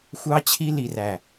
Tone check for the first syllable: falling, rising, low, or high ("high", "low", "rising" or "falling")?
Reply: high